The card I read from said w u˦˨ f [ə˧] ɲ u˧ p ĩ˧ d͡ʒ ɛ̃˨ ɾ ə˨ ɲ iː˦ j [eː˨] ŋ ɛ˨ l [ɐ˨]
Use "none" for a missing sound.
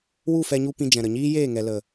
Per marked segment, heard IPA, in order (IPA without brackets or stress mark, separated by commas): ɛ˧, eː˦˨, ə˨